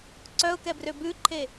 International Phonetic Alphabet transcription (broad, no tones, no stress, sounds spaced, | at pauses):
ǀ œ ʊ̯ k ɛ b r ø b ʉ ǃʰ e